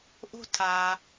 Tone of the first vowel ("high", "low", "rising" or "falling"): high